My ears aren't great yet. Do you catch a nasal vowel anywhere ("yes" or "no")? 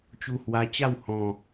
yes